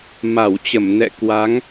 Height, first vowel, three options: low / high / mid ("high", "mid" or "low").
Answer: low